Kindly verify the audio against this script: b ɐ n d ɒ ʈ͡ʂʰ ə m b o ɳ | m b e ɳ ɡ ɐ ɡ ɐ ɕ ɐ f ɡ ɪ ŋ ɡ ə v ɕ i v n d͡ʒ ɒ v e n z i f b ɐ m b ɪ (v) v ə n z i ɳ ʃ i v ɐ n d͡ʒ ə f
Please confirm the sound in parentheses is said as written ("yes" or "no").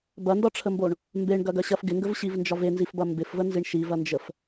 no